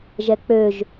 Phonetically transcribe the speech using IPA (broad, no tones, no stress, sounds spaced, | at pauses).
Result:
ʒ ɛ k͡p ø ʒ